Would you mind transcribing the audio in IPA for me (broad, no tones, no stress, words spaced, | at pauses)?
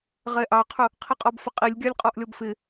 ʁɛʔɑqʰʊ | qʰiqʼɔbfəqʼilʲ ɡʲɑlʲqʼɔʔlʲɔbfɪ